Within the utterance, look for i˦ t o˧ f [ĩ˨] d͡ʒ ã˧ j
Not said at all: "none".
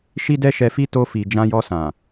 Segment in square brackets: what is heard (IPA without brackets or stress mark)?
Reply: i˨